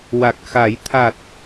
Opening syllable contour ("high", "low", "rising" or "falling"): low